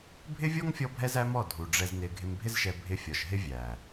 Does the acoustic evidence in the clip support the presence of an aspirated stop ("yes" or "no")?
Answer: no